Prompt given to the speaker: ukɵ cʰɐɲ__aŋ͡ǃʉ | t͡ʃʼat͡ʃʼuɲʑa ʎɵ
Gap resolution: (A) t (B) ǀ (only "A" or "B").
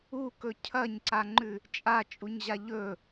B